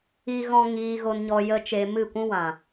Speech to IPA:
i˦ ɣ ɔ̃˦ ŋ iː˧ ɣ o˧ n ɲ ɔ˧ j ə˦ t͡ʃ e˧ m ɨ˦˨ kʷ ũ˦ w ã˨

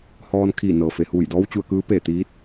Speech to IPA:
h ɔː˧ n kʰ iː˧˩ n ɤː˩ f e˩ h uː˧˩ j d ɔː˧˥ w t͡ɕ u˧ ə̯ k ɯː˧˥ p e˧˩ t̪ iː˧˥ t̚

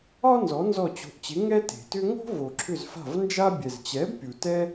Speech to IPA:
ɒ˥ n z ɔ˨˥ n z ɔ˦˨ t͡ɕ o̤˨˥ ʔ t͡ɕ ɪ˨˥ ŋ ɛ˥ t e̤˨ t ʏ˥ ŋ o̤˥ v o˨ ǁʰ ʏ˦˨ z f a̤˦˨ v n d͡ʒ a˥ bʲ ɛ˨ z t͡ɕ ɛ˨˥ b pʲ u˨ t ɛ˥

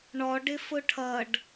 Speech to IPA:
ɳ ɔ ɖ ɪ f ʊ ʈʰ ʌ ɖ

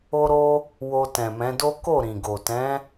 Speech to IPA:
o˧ ɾ o˧ | w o˧ t ɛ̃˨ m ɛ̃˨˦ d o˦ k o˦˨ ɾ ĩ˨ ɡ o˨ t ɛ̃˨˦

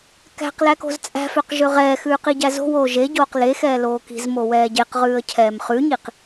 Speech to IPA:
k æ̤ q l æ k o̤ z t͡sʼ æ̤ f ø q ʒ ø ʁ ɛː x ʉː q i ɟ æ z o̤ w oː ʒ e ɟ oː q l e x ɛː l oː k i̤ z m o w ɛː ɟ e q ʁ ʉː ə̯ cʰ ɛː m χ ʉ ɲ i q

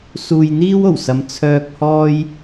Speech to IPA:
s uː˨ j n̪ iː˥ w o˨˩ w s ɐ˨˧ m t͡sʰ œː˧ k̚ h ɔː˧ j

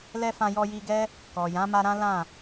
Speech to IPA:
l ɛ˧ f ã˧ j ɔ˧ j i˧ ɡ ɛ˦ | k ɔ˨ j ã˨˦ m a˧ ɾ ã˦ l ã˦˨

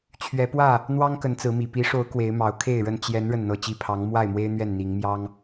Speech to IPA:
t͡ɕʰ ɥ ɛ˨˦ p w ä˥˨ | n̪ w ɑ˦ ŋ k ə˨˦ n t͡s ɹ̩˨˦ m i˨˩ p i˨˦ ʂ o˨˦ ʊ̯ k w e˨˦ ɪ̯ m ɑ˨˦ ʊ̯ kʰ e˥˨ ɪ̯ ɻ ə˥˨ n t͡ɕ j ɛ˨˦ n ɻ ə˥˨ n n̪ ɤ˥˨ t͡ɕ i˥˨ pʰ ɑ˨˦ ŋ m w a˥˨ ɪ̯ m w e˦ ɪ̯ n̪ ɥ ɛ˥˨ n n̪ i˨˦ ŋ m j ɑ˦ ŋ

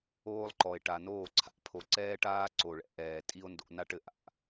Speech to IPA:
oː˦ lˠ ǃ ɔ˨ e̯ ʈ a˨ n oː˦˨ ǀʰ a̰˦ pʰ o˨ ǀ ɛː˦ ʈ aː˦ ǀ o˨ ɭ ɛ̰˧ ʔ ɛː˨ tʼ i˦ o̯ n d o̰˧ n a˦ ʈ ɘ˨ ʔ a̰˧ ʔ

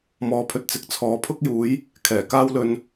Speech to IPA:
m ɔː˧ pʰ ɵ˧ t̚ t͡s ɪ˨ k̚ t͡sʰ ɔː˨˥ pʰ ʊ˥ k̚ j uː˨˥ j | kʰ ɛː˨˩ k aː˥ w l ɵ˧ n

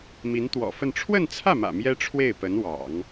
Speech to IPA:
m i˧˥ n t̪ w ɔ̰˨˩ f ə˥˧ n ʈ͡ʂʰ w ə˥˧ n t͡sʰ ä˥˩ m ä̰˨˩ m j ɛ˥ ʈ͡ʂʰ w e˥˩ ɪ̯ p ə˧˥ n w ɑ̰˨˩˦ ŋ

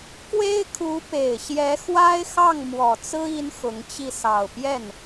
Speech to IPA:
k w e˥ ɪ̯ kʰ u˧˥ p e˨˩ ɪ̯ ɕ j ɛ˧˥ x w a˥ ɪ̯ x ɑ˥˩ ŋ m w ɔ˨˩ t͡s ɹ̩˥ i˥ n x ʊ˧˥ ŋ t͡ɕ i˥˩ s ɑ˨˩ ʊ̯ p j ɛ˥˩ n

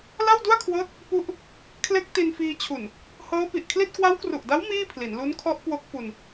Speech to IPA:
l a˥˩ w d u˥˩ a̯ kʰ w ɤː˦˥ t̚ | p u˥˩ ʔ | kʰ l e˦˥ k̚ t i˧ n f iː˧ t͡ɕʰ u˨˩ n | h ɤː˦˥ p i˨˩ ʔ kʰ l i˥˩ t̚ k w a˦˥ w k r u˨˩ ʔ d a˦˥ w m iː˥˩ pʰ l i˩˦ n l u˦˥ n kʰ ɔ˦˥ ʔ k w o˦˥ k̚ f u˧ n

